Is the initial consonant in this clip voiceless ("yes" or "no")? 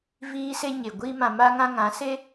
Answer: no